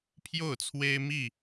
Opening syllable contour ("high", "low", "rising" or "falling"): falling